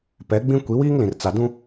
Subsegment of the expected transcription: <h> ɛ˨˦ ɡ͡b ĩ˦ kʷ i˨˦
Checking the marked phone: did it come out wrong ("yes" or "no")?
yes